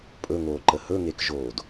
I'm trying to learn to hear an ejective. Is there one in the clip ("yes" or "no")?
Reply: yes